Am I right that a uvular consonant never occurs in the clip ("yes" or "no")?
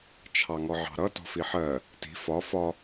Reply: yes